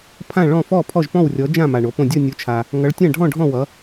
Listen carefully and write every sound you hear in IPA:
pʰ ã˥˧ ɭ ɔ̃˥˧ f ɔ˥˧ pʰ ɔ˥˧ ʒ p ɔ̃˥˧ w rʲ ɔ˧˥ d͡ʒ ã˥˧ m a˧ ɳ o˧˥ p õ˥˧ dʲ ʌ˥˧ nʲ o˧˥ t͡ʃʰ a˧ | ŋ ʌ˧˥ ɭ tʲ ã˥˧ ɖʱ ɔ̃˥˧ ɖʱ ɔ̃˥˧ w ʌ˧˥

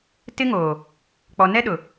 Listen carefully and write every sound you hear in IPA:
t ɪ˦ ŋ oː˨ | k͡p ɔ˨ n ɛ˦ ɗ ʊ˨

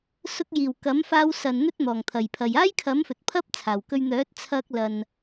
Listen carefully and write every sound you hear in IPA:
s ʊ˧ k̚ j iː˨˩ w k ɐ˨˥ m f aː˧ w s ɐ˨ n n̪ ɵ˥ t̚ n̪ ɔː˨˩ ŋ t̪ʰ ɐ˨˩ j pʰ ɐ˨ j aː˥ j kʰ ɐ˨˥ m f ɵ˨ t̚ pʰ ɐ˥ p̚ t͡sʰ aː˨˩ w k ɵ˧ ɥ n̪ œː˨˥ t̚ t͡sʰ ɐ˧ k̚ l ɐ˨ n

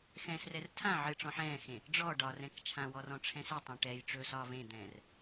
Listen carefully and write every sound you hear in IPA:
x ɛ̃ s r ɛ r tʰ ã ʕ ɨ ʈ͡ʂ ɔ̃ ħ ɛ̃ː x ẽ | ɖ͡ʐ ɔ ɖ ɒ r ɛ̃ k t͡ʃʰ ã w ɔ r ɔ̃ ʈ͡ʂʰ ɛ̃ s e tˤ ẽ ʈ ɛ j ʈ͡ʂ ɵː s ɒː v ẽ d̪ ɛ̃ː r

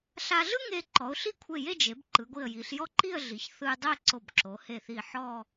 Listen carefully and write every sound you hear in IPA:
ɬ a˧ ɮ ɯ˥ ŋ e˧ ǃ ɔ˩˧ ʊ̯ ɬ i˥˧ kʷʰ e˧˩ j e˥˧ d͡ʒ e˩˧ b ǃ ɯ˩˧ ɡʷ i˧˩ ə̯ j i˩˧ ɬ j ɔ˥˧ ǃ i˥˧ ə̯ ɮ i˩˧ ç θ ɯ˧ j dˤ e˥˧ ǀ o˧˩ b ǁ o˩˧ h e˧˩ θ i˧˩ ħ ɔ˥˧

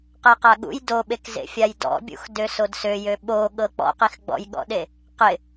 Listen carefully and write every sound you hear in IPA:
q æ q a ɠ ṵ j d o ɓ e k z ḛ fʲ a j d ɔ̰ bʲ ṵ x d ø s o d s ø j ø ɓ o ɠ ɤ k͡p ɔ̰ q i x ɡ͡b ɔ̰ j ɠ ɔ̰ ɗ e | q ɪ

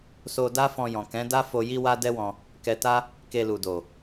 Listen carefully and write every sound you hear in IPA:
s o˧ d a˦ f ɔ̃˧ j ɔ̃˨ k ɛ̃˨˦ d a˦ f o˧ j i˦ w a˦ d ɛ˦ w ɔ̃˧ | k ɛ˧ t a˦ | k e˧ l u˨ d o˨

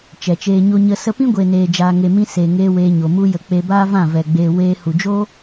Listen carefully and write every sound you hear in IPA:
t͡ʃ ɛ˨ t͡ʃ eː˧ ɲ o˦ ɲ ə˦ s ə˧ p ĩ˦ ɡʷ eː˨ n eː˨ d͡ʒ aː˨ ŋ e˨ m ĩ˧ s e˨ ŋ eː˧ w eː˧ ɲ o˨ m u˦ j ə˧ k͡p e˧ b aː˦ v ã˦˨ v ɛ˨ ɡ͡b e˨ w eː˧ h u˨ d͡ʒ o˦

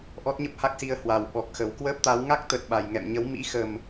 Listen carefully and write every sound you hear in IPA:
ʔ ɔ˦˥ t̚ ɲ ə˦˥ p̚ h a˦˥ k̚ s i˧ ə̯ h w a˨˩ w ɓ ɔ˨˩ k̚ x ə˨˩ w k w əː˦˥ p̚ t̪ a˨˦ w ŋ a˦˥ k̚ t̪ ə˨˩ t̚ ɓ a˨˩ j ŋ ɛ̰˧˨ m ɲ ə˨˦ w m ḭ˧˥ x ə˨˩ m

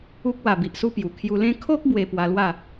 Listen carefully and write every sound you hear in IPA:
u˦ k̚ w a˨˩ b i˨ ʔ s u˧ p j u˨˩ kʰ j u˧ l ẽ˦ kʰ o˦ k̚ b w e˧ p w a˧ l w a˥˧

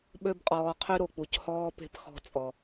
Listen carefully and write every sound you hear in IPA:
ɓ ø˧ b qʼ ɔː˨ qʰ y˦ ɾ o˨ k͡p u˨ c h ɔː˦ p e̤˦ p x ɔ̤˧ t͡sʼ ɔ˨

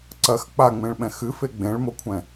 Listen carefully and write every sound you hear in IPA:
ǀ ɐ x k͡p a ŋ͡m ẽ ɭ ɓ ɛ̃ x ɨ f e ɡ͡b ẽ ɭ m o kʷʰ ɛ̃

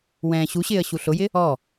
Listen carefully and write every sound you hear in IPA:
w ɛ̃ː ɕ u ɕ ɪː ə̯ ɕ u ɬ ʊ j ɪ | ɔ

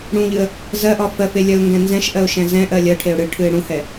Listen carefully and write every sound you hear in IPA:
ɽ ũ ʎ ɨ ə̯ | z ɜ ʔ ɒ f ɜ f e lʲ ɜ ʊ̯ ŋ ɡ ɛ̃ n z ɛ̃ ʃ ʔ ɜ ʊ̯ ʃ ɛ̃ z ɛ̃ ʔ ɜ lʲ ɜ ʈʰ e ʊ̯ ɽ ɨ ʈʰ ɨ ɪ̯ ɽ ũ h ɛ

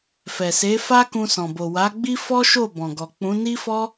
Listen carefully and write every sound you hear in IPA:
f ɛ˨ s e˨˦ f a˦ k ũ˧ s ɔ̃˨ b o˨ w a˨˦ ɡ͡b i˦ f ɔ˦ ʃ o˦˨ b ɔ̃˨ ɡ ɔ˨ k͡p ũ˨˦ n i˦ f ɔ˦

